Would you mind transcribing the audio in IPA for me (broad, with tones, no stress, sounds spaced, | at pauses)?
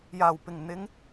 j aː˨˩ w p ɪ˨˩ ŋ n̪ ɪ˨˧ ŋ